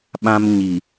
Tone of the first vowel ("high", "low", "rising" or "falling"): high